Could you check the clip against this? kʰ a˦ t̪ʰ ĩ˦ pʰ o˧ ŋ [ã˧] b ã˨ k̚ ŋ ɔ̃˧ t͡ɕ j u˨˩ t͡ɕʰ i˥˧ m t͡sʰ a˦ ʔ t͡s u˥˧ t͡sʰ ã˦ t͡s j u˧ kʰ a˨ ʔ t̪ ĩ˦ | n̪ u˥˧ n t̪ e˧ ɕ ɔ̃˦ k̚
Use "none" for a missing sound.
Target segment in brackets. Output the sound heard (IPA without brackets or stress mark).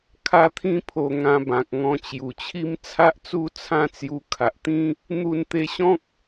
ã˧